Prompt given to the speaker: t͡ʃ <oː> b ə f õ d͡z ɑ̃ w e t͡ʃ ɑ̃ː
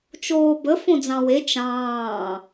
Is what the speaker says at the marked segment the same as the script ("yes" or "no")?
yes